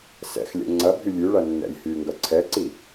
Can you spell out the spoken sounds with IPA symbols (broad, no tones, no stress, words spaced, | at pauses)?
sɛ̰xlʲɛ̰ ŋ͡ǀɐbʱy lʲʉɭɐ nːɛ̰lʲhyŋɡɐ ǀʰɛǀi